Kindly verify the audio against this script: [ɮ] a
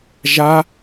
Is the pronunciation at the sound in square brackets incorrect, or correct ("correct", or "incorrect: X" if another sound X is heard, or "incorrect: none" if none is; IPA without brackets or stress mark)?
incorrect: ʒ